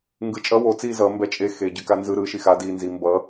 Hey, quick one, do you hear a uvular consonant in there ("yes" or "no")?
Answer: no